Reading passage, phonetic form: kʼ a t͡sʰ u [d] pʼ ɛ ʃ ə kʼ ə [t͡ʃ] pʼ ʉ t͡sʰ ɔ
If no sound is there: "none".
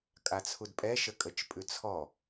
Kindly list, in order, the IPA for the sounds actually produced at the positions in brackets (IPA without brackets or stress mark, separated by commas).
d, t͡ʃ